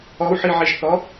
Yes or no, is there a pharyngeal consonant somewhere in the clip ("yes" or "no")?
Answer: yes